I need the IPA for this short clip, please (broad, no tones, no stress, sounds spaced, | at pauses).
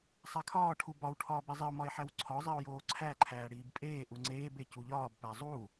sˤ æ kʰ ɒː ʈʰ u b ɒ w ʈʰ ɒː b i zˤ i o̯ m ɒ e̯ ħ æ w ǀʰ ɒ zˤ i o̯ j oː ǀʰ æ ǃʰ æː ɽ iː b pʼ eː ʔ u ŋ͡ǀ eː b e c u ʎ ɒː b p æ zˤ u